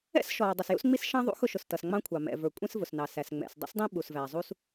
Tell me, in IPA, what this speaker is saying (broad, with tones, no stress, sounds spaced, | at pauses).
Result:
ɛ̰˥ s ʃ ɔː˩ dˤ ʌ˩ s j ṵ˥ s ŋ͡m i˥ s ʃ ɑ̃˥ ðˤ ṵ˥ x ʊ˥ ʃ ʊ˩ s t ʌ˩ s ŋ͡m ɑ̃˥ kʷʰ ɑ˩ m ɛ̰˩ v ə˞˩ kʷʼ ɛ̃˥ s v ʊ˩ s n ɑ˩ s æ˩ s ŋ͡m ɛ̰˩ s dˤ ṵ˥ s dˤ ĩ˥ ɓ u˩ s v æ˩ zˤ u˥ s